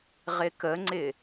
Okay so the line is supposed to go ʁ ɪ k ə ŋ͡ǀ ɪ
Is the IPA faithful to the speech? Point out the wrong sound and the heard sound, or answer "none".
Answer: none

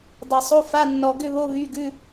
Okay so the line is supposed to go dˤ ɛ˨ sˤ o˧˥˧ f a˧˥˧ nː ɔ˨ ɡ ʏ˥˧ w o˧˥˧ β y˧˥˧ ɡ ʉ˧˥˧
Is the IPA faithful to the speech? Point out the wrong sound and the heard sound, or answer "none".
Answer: w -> β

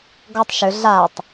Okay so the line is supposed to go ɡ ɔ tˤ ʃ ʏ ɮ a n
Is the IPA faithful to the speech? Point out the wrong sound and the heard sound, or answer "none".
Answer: n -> tˤ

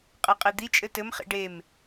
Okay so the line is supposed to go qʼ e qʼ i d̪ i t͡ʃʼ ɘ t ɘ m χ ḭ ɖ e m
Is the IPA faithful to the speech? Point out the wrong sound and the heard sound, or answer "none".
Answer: none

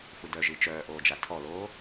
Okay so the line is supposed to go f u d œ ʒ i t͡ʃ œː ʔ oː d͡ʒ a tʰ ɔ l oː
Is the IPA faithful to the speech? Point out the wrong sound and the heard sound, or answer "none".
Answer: none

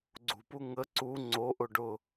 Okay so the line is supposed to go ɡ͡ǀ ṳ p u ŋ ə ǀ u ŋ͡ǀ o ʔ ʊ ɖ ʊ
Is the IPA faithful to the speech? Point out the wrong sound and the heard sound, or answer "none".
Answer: none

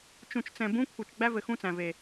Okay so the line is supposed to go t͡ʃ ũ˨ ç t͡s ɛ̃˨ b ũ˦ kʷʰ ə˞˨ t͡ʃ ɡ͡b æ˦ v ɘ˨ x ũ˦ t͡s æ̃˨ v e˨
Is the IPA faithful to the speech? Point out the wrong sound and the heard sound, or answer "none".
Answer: ç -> t͡ʃ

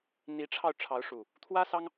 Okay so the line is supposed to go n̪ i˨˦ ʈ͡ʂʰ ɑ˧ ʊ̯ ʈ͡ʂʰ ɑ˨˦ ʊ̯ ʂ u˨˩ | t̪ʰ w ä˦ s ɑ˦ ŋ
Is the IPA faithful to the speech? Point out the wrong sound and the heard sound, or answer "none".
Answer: none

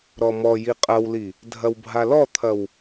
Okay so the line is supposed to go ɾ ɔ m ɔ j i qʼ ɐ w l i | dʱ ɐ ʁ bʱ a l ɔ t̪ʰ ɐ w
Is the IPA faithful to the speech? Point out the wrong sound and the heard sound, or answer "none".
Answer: ʁ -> w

